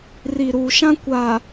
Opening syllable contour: low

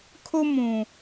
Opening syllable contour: high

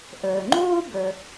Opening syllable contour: low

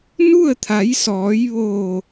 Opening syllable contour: falling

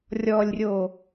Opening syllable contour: low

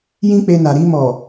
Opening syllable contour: high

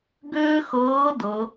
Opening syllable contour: high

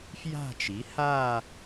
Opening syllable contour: falling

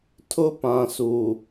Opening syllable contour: high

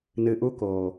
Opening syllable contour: low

